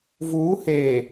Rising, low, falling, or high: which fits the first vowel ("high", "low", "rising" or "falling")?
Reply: rising